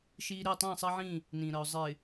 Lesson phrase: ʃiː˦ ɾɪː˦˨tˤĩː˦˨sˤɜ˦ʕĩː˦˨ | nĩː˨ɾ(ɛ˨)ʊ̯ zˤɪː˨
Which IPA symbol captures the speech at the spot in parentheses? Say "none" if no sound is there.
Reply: ɜ˨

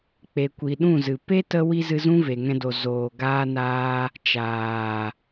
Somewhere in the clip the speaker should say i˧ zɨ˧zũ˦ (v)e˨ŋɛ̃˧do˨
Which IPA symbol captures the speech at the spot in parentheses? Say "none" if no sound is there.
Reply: v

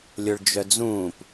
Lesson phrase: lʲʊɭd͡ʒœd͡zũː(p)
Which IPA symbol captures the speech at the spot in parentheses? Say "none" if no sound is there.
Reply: p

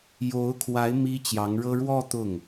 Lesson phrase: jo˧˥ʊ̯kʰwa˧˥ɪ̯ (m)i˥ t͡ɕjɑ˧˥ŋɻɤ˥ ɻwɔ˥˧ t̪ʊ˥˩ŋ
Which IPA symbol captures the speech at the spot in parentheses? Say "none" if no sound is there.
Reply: m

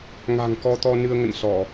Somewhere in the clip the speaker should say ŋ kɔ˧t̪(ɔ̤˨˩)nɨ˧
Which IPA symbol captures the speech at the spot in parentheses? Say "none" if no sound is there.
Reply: ɔ˧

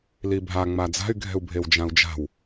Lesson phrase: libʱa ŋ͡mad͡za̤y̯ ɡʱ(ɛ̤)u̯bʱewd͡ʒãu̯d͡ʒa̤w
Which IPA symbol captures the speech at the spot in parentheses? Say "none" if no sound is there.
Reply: ɛ̤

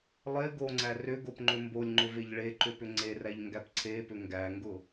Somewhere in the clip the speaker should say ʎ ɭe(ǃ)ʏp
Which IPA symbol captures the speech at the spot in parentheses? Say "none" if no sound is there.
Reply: ǃ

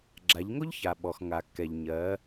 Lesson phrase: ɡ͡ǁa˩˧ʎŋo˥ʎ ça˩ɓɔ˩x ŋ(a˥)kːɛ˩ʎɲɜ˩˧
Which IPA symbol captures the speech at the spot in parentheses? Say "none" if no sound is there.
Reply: a˩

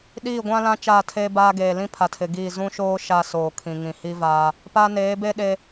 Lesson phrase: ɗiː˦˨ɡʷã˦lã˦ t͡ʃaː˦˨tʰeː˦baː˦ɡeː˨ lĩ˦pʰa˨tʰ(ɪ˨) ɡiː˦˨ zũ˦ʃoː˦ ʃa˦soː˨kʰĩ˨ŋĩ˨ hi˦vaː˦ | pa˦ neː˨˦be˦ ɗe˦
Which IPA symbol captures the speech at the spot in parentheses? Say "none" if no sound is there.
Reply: ɪ˨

